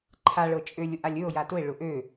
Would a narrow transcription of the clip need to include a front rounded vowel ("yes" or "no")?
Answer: yes